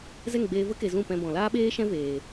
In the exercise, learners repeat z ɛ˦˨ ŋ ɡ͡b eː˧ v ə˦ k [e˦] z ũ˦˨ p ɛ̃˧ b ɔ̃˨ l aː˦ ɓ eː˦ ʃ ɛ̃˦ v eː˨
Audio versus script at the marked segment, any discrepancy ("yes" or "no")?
yes